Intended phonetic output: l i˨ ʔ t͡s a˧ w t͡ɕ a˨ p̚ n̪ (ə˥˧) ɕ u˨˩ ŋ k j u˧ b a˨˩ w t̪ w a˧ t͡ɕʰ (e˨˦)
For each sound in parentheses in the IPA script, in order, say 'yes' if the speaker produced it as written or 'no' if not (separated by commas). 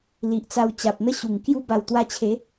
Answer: yes, yes